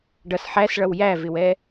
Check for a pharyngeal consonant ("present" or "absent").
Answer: present